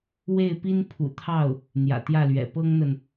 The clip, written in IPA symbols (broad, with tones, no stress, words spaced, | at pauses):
we˥˩ɪ̯pi˥n pʰṵ˨˩t̪ʰɑ˥˩ʊ̯ | n̪jä̰˨˩t̪jä˥˩lɥɛ̰˨˩ pɤ˥ŋn̪ə˨n